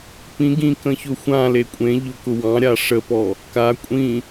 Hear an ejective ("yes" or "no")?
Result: yes